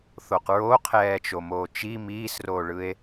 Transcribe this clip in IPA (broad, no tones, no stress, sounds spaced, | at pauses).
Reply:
θ o q ɹ o qʰ ɛː t͡ʃ o m oː t͡ʃ i m iː s r oː ɭ ɯ e̯